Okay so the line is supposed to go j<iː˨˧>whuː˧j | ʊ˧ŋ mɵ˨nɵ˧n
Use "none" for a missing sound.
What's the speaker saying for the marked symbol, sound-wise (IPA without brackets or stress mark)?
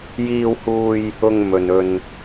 iː˧